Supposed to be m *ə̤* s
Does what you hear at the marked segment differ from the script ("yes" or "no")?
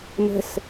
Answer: no